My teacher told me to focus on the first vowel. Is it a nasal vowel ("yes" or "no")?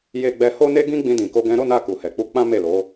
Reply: no